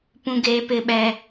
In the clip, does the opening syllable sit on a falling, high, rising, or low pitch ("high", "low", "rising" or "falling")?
high